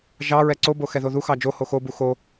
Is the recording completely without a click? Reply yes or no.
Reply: no